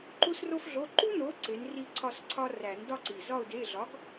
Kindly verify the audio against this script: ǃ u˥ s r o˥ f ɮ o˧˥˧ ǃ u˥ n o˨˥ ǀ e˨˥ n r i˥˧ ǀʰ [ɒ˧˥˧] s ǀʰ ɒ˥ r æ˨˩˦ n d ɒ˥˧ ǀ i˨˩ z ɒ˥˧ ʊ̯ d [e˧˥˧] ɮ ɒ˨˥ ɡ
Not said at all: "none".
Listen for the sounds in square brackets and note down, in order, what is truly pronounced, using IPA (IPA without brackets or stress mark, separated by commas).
ɒ˥˧, e˧˥˧